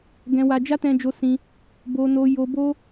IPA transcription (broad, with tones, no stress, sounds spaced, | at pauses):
ɡ ɛ̃˧ w a˧ d͡ʒ a˦ t ɛ̃˧ d͡ʒ o˧ s ĩ˧ | b o˧ n o˧ j o˧ b o˦